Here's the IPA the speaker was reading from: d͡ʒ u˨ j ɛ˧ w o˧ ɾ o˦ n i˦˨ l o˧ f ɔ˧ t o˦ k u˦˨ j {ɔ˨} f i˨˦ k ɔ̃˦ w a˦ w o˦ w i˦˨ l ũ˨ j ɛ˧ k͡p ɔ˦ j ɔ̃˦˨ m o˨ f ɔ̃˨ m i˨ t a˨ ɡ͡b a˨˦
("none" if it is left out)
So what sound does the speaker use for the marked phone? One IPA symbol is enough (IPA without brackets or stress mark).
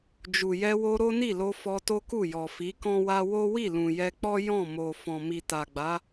ɔ˨